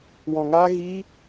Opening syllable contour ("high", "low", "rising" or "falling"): low